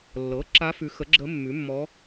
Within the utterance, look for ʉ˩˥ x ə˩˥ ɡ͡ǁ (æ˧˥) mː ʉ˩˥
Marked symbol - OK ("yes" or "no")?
no